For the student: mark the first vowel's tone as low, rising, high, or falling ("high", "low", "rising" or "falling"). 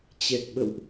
low